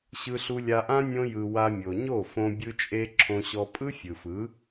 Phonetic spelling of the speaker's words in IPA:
ɕ ɯ˧ ɬ u˧ lʲ a˧ ʔ ã˦ nʲ õ˧ j ɯ˨ w a˧ mʲ o˨ ɲ o˦˨ f õ˧ bʲ ɯ˧ t͡ʃʼ e˧ ǁʰ õ˧ ɕ ɔ˧ pʼ ɯ˦ fʲ ɯ˨ f ɯ˨˦

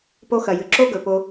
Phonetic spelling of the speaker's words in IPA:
p o˧ x ɐ˨ j ɨ˨ ǁ o˦ ɡ ɵ˨ p o˧

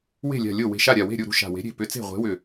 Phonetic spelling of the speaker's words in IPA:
w e̤˥˩ lʲ a̤˧˩ lʲ o˥˩ w e̤˧˩ ʃ a˥˩ ɾʲ a˧˩ w e̤˥˩ ɾʲ u˥˩ ɾ ṳ˥˩ ʃ a̤˧˩ w e̤˨˥ ɾʲ e̤˥˩ p ʏ˨˥ t͡s e̤˥˩ ʁʷ e̤˨˥ w ʏ˧˩

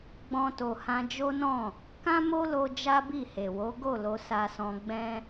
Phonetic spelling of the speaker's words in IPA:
ɡ͡b ɔ̃˧ t o˨ h ã˧ d͡ʒ o˦ n ɔ̃˦˨ | k ã˦ m o˦ l o˧ d͡ʒ a˦ b i˦˨ h e˨ w o˨˦ ɡ o˦˨ l o˧ s a˧ s ɔ̃˧ ɡ͡b ɛ̃˦

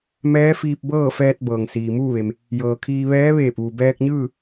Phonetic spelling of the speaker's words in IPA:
m ɛː˧˥ f iː˧ p̚ b ɤː˥˨ f ɛː˧ t̚ b ɤː˩ ŋ s iː˩ m uː˥˨ ʋ e˩ m | j ɤː˩ kʰ iː˧ ʋ ɛː˧˥ ʋ eː˧˩ p̚ ʋ u˩ b ɛː˧ k̚ ɲ ɯː˥˨

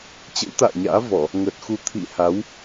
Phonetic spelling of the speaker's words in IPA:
t͡ɕ ə̰˧˥ w t̪ a̰ː˧˨ ɲ a̰ː˧˥ v ɔ˧˩˨ | ŋ əː˨˩ t̚ x u˧ t̪ʰ ḭ˧˨ h a˨˦ w

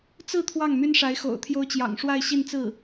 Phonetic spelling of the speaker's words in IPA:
t͡s ɹ̩˥˧ t̪ʰ w ɑ˥˩ ŋ m y˥ n ʂ a˧˥ ɪ̯ x o̰˨˩ ʊ̯ t̪ʰ j o˥ ʊ̯ t͡ɕ j ɑ̰˨˩ ŋ ʂ w a˥˧ ɪ̯ ɕ i˥˧ n t͡s ɹ̩˥˩

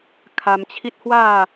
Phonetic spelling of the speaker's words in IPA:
kʰ a˧ m t͡ɕʰ i˦ t̚ h w a˥˧

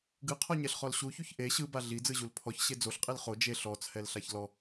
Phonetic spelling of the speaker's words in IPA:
ɡ ɯ qʰ ɔ ɲ ɛ ɬ χ ɔ l ɕ u ç u ç ʔ e ɕ ɯ b a ɮ i d͡z ɯ ʑ u l pʰ ɔ ç ɕ e d͡z o ɬ qʼ i l χ o d͡ʒ e ɬ ɔ t͡sʰ ɛ l ɬ a ç l ɔ

